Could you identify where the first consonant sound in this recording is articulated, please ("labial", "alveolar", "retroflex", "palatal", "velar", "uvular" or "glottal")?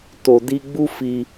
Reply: alveolar